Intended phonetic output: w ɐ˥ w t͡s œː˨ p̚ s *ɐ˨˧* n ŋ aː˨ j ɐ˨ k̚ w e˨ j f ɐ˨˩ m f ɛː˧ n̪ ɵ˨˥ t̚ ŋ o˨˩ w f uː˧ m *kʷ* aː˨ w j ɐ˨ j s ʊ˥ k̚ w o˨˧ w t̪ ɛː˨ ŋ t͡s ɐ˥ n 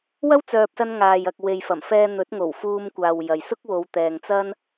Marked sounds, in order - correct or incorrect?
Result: incorrect: ɐ˧, correct

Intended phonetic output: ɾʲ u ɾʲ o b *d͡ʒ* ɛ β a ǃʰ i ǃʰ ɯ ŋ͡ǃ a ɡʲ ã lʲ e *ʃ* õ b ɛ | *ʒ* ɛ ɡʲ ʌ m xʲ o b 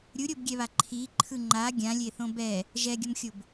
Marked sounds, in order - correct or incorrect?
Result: incorrect: ɡʲ, incorrect: θ, correct

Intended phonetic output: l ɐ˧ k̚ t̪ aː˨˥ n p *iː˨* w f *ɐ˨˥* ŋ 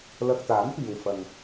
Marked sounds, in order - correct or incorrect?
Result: correct, incorrect: ɐ˨

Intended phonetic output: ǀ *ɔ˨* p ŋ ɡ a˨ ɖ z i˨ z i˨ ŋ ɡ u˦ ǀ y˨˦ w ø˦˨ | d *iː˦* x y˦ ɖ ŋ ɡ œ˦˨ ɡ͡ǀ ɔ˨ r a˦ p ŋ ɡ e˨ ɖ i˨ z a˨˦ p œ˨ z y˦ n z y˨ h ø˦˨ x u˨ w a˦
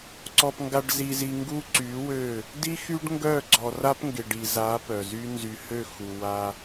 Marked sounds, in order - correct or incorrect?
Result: correct, incorrect: i˦

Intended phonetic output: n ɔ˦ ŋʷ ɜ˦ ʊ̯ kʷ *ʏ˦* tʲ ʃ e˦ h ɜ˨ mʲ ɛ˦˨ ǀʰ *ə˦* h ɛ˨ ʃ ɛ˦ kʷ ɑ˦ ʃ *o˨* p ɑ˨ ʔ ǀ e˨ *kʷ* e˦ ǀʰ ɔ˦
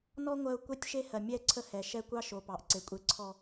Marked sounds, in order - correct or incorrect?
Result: incorrect: ɛ˦, correct, correct, incorrect: kʷʼ

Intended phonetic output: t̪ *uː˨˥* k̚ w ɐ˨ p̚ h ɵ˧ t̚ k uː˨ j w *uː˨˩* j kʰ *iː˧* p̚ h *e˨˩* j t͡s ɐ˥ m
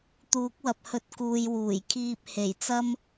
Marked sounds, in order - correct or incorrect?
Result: correct, correct, correct, correct

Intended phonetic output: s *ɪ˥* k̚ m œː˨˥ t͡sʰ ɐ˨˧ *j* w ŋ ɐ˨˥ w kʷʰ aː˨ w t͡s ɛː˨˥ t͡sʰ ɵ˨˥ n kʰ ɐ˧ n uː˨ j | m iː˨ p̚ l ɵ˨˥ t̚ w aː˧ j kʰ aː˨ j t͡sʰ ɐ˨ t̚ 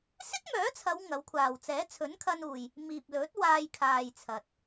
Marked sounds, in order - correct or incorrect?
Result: correct, incorrect: none

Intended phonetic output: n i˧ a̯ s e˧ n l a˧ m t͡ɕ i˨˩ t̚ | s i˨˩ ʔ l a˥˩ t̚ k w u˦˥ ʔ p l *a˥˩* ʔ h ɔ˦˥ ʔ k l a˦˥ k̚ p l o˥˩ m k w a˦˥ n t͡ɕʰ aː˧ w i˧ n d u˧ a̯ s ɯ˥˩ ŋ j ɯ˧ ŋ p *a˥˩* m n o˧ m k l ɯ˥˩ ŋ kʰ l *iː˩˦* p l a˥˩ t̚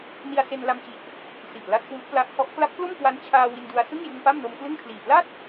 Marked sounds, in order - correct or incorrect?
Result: incorrect: a˦˥, correct, incorrect: iː˨˩

